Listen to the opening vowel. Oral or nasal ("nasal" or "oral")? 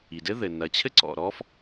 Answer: oral